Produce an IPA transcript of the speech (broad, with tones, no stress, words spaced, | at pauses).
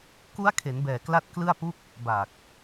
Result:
ku˦˥a̯kʰe˩˦nbɛː˨˩ kla˥˩t̚klɯ˥˩a̯pu˥˩k̚ | ba˨˩k̚